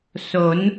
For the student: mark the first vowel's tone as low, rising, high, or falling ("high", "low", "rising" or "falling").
rising